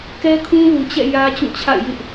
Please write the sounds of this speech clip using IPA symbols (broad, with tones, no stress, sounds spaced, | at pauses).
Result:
k ɛ˦ kʰ ũ˦ l u˨ t͡ɕ ɛ̰˦˨ j ä˦ t͡ɕ ũ˦˨ t͡ɕʰ a̰˦˨ ɪ̯ j ɪ˦ ʔ